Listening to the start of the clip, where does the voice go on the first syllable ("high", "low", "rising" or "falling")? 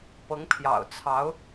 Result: rising